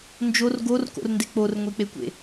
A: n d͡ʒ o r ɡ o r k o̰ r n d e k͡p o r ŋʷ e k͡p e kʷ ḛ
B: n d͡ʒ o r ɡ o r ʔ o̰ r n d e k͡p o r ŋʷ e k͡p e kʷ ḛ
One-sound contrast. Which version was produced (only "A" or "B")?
A